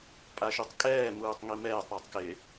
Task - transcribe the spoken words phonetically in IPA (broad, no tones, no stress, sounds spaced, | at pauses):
pʼ a ʃ u tˤ kʼ ɛː m uː tˤ ŋ i m ɛː tˤ ɾ a tˤ k ɪ